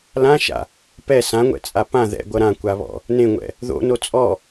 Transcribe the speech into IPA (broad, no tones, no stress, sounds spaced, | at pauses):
l ã ʃ a̰ | p ɛ s ã ŋʷ ɛ̰ t͡sʼ a p ã ð ɛ̰ ɡʷ ʌ ɾ ã kʷ a β ɔ̰ | n ẽ ŋʷ ɛ̰ | ð o̰ n o t͡sʼ ɔ